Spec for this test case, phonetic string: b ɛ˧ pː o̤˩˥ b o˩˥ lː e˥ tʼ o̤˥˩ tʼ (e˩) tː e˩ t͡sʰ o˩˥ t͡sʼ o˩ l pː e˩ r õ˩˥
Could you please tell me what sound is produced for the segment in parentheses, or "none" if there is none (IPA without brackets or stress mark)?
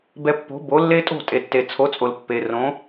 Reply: e˩